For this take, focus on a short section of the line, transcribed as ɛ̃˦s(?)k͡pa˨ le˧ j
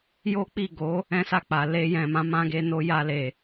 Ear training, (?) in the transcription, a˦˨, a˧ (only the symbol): a˦˨